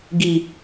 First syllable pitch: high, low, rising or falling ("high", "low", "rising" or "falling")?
low